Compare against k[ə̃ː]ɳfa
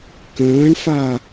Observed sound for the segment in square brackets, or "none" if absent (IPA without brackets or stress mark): ə̃ː